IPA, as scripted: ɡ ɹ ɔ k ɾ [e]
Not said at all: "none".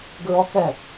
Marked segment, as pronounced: ɛ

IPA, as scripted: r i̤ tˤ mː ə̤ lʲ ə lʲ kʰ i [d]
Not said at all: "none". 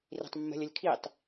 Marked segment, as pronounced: tˤ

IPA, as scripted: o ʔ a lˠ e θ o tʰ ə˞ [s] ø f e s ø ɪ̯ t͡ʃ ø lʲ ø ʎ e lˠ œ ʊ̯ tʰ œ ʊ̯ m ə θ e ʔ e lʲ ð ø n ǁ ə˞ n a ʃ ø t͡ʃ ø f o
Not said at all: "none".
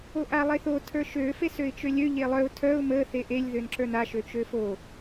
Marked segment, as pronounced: ʃ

